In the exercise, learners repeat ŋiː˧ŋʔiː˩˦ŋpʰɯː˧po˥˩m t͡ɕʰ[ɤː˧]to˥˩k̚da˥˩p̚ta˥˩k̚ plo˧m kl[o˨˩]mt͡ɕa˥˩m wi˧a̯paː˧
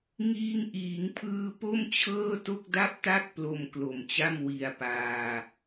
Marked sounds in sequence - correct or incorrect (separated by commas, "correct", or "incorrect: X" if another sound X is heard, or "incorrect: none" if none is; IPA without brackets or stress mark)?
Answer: incorrect: ɤː˥˩, correct